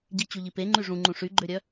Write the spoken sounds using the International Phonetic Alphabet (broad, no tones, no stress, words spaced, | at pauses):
ɟit͡ɕuʎi pe ŋ͡ǃyʐũŋ͡ǃũ ʂyɡ͡ǃøɾʲœ